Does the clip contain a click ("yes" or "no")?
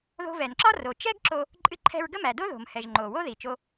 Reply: yes